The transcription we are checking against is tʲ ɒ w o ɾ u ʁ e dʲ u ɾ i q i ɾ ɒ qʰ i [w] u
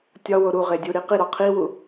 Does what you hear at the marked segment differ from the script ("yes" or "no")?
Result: no